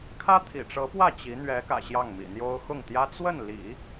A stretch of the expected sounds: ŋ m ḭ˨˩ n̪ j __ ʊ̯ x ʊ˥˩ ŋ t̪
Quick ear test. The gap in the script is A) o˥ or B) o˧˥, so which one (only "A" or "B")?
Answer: A